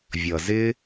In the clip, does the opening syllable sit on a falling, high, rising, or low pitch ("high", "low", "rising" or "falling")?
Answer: low